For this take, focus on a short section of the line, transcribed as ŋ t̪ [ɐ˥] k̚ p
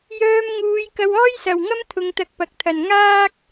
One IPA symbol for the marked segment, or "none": ɐ˧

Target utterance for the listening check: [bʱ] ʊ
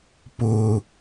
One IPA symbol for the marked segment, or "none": p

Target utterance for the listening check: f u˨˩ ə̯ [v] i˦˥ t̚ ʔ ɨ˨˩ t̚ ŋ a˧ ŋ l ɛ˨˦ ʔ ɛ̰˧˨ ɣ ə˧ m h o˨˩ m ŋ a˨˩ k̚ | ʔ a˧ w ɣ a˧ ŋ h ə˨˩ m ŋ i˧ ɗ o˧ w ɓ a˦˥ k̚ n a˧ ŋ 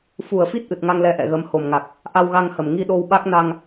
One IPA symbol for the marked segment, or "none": f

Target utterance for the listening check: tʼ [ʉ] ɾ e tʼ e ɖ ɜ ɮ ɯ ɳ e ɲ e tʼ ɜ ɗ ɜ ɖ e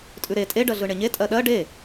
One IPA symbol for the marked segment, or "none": ʉ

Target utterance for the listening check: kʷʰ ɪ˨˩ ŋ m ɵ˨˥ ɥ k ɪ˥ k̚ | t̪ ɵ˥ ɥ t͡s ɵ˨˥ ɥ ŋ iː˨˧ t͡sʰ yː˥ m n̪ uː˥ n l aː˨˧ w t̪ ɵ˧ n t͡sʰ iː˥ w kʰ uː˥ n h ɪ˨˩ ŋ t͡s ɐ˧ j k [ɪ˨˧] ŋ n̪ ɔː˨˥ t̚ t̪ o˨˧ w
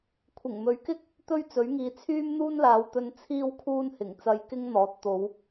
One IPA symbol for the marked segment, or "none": ɪ˥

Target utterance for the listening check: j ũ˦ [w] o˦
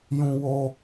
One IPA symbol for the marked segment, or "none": w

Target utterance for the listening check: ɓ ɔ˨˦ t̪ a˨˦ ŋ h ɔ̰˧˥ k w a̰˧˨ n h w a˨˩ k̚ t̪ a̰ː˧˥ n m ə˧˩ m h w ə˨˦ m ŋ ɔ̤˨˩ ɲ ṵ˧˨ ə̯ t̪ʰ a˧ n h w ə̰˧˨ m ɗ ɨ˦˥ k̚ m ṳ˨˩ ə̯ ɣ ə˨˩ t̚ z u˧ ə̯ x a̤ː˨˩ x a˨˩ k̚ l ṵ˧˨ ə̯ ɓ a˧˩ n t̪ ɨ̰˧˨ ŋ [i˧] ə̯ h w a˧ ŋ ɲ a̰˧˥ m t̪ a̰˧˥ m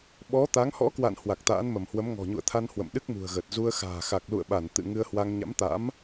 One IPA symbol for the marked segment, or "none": ɨ˧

